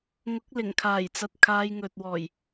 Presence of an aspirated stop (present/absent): present